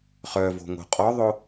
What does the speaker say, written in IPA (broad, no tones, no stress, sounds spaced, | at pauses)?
χ œ v o̤ ŋ o̤ qʼ ɔ ðˤ o